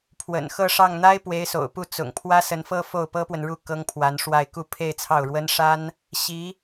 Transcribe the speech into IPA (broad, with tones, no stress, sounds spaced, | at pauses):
pʰ w ə̰˨˩ n x ɤ˥˧ ʂ ɑ˥˩ ŋ n̪ a˥ ɪ̯ p w e˧˥ ɪ̯ s o̰˨˩ ʊ̯ p u˥˩ t͡s ʊ̰˨˩ ŋ pʰ w ä˥ s ə˧˥ n f ɤ˥ f o˥˩ ʊ̯ p ɤ˥ p w ə˨ n ɻ u˥˩ k ɤ˥ ŋ pʰ w a˧˥ n ʂ w a˥˧ ɪ̯ k u˥˧ pʰ e˥˧ ɪ̯ t͡sʰ ɑ˥˩ ʊ̯ ɻ w ə˥ n ʂ a˥ n | ɕ i˧˥